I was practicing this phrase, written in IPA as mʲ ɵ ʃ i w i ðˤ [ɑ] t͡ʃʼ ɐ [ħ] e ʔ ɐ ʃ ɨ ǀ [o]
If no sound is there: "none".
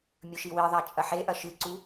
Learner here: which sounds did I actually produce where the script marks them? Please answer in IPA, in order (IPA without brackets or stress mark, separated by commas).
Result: a, ħ, u